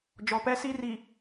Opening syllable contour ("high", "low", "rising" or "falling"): low